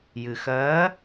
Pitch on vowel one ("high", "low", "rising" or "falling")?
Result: low